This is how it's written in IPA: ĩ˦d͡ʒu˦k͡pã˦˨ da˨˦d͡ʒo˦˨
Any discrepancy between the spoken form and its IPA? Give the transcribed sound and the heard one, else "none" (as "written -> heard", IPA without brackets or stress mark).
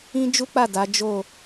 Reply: ã˦˨ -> a˦˨